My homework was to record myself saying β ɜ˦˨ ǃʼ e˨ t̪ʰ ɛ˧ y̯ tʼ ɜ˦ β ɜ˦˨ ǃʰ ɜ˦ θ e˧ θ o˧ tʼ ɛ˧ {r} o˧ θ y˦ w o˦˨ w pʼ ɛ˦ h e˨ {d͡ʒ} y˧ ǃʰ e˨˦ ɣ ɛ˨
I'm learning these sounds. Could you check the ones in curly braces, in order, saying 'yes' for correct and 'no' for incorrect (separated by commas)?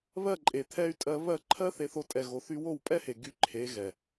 no, no